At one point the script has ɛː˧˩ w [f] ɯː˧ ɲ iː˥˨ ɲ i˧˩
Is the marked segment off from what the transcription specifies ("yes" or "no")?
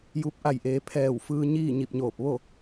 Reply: no